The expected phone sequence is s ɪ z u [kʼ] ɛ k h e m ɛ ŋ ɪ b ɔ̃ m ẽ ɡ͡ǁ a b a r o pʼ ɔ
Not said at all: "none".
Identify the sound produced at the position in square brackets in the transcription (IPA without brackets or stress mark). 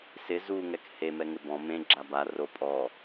ŋ